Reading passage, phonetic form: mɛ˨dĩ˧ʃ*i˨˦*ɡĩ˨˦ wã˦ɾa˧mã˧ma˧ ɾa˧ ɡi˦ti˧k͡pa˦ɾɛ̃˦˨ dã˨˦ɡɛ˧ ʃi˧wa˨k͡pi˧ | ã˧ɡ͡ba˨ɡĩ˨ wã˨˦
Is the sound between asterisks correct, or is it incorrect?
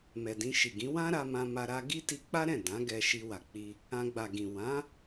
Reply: incorrect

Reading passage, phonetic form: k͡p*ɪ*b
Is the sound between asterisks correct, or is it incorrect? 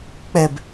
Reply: incorrect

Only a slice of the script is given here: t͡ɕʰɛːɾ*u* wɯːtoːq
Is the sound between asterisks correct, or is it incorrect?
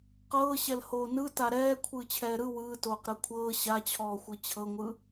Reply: incorrect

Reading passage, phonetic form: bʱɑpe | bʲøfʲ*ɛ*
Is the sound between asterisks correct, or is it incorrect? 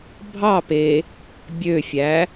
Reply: incorrect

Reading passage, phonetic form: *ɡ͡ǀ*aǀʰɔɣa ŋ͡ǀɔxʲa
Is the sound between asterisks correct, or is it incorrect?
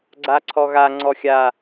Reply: correct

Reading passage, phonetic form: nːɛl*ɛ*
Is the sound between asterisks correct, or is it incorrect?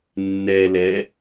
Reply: correct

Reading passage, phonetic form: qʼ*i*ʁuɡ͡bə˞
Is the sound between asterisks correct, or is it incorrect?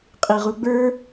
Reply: correct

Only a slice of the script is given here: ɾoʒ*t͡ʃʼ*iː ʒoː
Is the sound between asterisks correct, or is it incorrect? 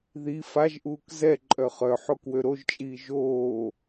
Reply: correct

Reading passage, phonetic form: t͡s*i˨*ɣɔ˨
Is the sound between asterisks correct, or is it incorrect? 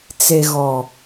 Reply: incorrect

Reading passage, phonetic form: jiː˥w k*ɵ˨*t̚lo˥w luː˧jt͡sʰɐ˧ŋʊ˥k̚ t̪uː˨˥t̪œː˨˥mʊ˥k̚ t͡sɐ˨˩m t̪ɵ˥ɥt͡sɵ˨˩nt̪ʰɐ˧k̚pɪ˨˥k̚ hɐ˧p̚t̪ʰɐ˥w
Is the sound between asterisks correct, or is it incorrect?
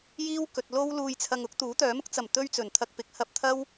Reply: correct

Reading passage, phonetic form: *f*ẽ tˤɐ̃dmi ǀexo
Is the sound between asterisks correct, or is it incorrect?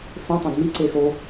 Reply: correct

